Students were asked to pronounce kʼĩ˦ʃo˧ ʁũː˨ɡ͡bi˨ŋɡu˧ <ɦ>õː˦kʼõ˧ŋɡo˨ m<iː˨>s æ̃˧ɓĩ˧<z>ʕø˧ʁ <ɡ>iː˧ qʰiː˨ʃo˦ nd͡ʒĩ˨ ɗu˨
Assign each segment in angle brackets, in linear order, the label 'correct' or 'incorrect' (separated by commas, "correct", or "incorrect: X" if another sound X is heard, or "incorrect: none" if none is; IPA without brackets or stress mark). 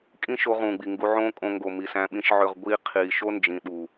incorrect: ʕ, incorrect: i˨, incorrect: ʃ, incorrect: ɡʷ